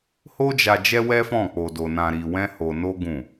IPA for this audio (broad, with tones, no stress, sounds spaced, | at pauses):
h o˦ d͡ʒ a˧ d͡ʒ ɛ˦ w ɛ˦ f ɔ̃˦˨ k͡p o˧ d o˧ n ã˧ ɾ i˧ w ɛ̃˦ h o˧ n o˦ ɡ ũ˦˨